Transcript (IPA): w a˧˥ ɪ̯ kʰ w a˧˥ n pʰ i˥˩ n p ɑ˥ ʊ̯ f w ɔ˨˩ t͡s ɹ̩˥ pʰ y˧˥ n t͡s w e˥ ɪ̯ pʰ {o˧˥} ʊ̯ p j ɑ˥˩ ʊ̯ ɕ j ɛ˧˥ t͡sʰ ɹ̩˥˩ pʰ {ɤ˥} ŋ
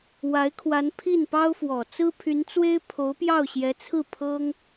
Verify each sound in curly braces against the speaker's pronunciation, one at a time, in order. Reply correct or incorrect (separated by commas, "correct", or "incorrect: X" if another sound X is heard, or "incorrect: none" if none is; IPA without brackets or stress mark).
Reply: correct, correct